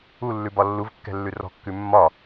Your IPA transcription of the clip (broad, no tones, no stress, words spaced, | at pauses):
ulːʉ bɒlːuvkːɛ̤lːʉ rɔ̤kːʉ mːɒ